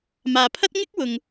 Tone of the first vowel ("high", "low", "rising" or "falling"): low